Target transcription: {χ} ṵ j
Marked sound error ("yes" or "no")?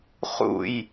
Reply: no